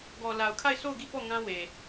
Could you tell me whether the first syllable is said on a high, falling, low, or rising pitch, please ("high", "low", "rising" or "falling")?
low